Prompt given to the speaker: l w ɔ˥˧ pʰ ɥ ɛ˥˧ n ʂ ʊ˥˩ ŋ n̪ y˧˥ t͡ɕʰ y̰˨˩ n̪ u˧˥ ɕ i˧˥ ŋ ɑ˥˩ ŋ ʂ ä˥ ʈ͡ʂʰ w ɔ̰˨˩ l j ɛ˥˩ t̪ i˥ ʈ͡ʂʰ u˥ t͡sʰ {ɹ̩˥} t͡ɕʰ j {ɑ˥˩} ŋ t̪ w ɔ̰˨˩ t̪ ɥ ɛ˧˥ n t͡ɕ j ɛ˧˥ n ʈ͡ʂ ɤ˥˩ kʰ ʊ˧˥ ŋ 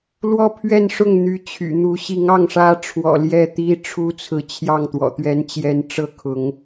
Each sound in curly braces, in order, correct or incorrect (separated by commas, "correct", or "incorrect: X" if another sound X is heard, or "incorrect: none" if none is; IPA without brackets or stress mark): incorrect: ɹ̩˧˥, correct